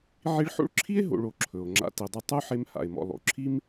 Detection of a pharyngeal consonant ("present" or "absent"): present